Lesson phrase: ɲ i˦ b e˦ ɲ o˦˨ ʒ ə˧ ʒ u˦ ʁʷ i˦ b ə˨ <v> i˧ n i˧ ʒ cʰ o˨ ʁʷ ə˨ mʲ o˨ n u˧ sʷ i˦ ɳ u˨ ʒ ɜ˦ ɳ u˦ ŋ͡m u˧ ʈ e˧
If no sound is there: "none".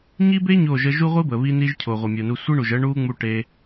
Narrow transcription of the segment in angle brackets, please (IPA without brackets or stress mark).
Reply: β